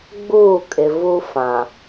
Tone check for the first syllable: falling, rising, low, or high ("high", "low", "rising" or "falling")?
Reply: falling